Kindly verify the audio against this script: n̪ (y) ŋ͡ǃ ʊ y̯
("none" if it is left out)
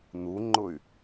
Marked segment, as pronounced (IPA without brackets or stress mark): u